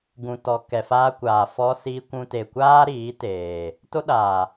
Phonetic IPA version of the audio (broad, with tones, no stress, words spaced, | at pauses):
ɡũ˨tɔ˨ kɛ˨faː˧kʷaː˨ fɔ˧si˧kʷũ˧ te˨kʷaː˦ ɾiː˨˦teː˨ | to˦ɗaː˨